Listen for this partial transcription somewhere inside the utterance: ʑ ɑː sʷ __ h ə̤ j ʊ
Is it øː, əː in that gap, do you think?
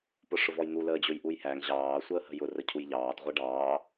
əː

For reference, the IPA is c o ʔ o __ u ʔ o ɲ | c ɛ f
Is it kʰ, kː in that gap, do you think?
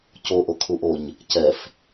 kʰ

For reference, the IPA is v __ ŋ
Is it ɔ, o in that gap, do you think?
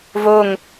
o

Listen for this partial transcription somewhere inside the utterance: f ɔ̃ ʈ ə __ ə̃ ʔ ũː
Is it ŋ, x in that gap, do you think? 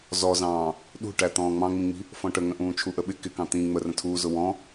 ŋ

